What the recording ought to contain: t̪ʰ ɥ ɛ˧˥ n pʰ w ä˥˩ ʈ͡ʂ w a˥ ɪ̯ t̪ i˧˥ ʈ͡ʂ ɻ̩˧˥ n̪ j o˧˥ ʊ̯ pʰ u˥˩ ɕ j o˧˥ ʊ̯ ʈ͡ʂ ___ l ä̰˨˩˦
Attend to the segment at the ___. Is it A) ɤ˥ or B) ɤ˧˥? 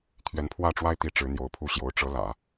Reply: B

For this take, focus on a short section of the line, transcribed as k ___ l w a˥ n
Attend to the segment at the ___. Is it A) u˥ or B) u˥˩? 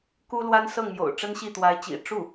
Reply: A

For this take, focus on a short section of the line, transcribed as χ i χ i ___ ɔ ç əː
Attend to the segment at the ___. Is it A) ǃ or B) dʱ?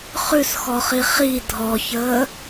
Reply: B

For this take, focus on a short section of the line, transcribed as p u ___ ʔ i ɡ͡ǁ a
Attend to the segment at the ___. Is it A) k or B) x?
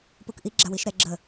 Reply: A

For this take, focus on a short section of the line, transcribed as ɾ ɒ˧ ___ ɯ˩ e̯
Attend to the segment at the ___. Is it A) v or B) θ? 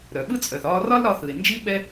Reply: B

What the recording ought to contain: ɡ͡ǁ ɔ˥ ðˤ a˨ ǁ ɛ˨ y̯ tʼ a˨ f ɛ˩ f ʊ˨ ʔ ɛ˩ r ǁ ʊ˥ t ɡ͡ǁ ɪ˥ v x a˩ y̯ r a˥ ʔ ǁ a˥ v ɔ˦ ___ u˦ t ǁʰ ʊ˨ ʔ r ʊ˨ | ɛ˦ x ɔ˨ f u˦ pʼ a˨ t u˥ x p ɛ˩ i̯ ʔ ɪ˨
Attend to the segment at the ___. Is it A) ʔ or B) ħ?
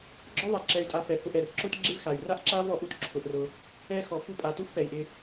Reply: A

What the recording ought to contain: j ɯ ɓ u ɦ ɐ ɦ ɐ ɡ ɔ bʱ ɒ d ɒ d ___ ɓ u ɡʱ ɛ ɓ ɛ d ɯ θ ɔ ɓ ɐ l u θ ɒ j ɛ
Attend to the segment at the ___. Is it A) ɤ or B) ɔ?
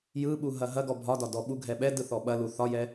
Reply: B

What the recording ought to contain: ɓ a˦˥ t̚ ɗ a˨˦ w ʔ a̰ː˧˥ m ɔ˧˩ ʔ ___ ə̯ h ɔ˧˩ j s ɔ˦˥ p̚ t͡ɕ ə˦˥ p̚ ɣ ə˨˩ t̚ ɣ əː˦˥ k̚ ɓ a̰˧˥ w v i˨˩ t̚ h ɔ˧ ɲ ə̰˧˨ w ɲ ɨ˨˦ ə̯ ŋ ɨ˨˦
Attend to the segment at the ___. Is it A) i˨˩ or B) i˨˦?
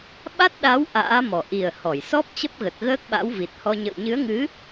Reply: A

